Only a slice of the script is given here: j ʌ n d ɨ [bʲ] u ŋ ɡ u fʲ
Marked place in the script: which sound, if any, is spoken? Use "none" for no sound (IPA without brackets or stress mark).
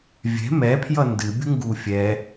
bʲ